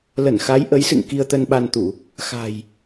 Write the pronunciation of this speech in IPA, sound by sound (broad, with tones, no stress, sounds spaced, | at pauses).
l ə˧˩ n x a˨˦ j ʔ ə˨˦ j s ɨ̰˧˨ ŋ k i˧ ə̯ t̪ ə˧ n ɓ a˧ n t̪ u˧˩˨ | x a̤˨˩ j